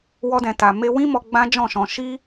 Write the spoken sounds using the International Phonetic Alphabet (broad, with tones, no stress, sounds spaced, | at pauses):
w ɔ˧ d ɛ̃˨ t a˨ m e˧ w ĩ˦ m ɔ˧ ɡ͡b ã˦ d͡ʒ ɔ̃˦˨ ʃ ɔ̃˧ ʃ i˦